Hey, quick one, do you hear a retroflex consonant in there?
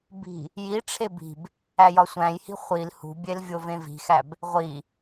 yes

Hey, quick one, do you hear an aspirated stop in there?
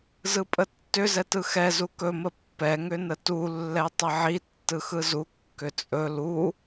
no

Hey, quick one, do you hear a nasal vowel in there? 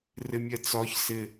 no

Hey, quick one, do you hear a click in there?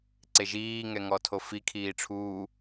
yes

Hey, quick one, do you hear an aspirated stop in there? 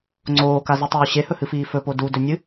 no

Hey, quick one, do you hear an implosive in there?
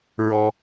no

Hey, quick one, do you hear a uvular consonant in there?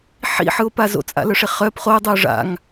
yes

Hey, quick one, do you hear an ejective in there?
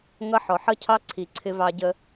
no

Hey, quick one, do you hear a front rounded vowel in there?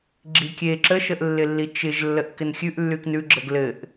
yes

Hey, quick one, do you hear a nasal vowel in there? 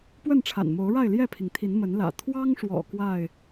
no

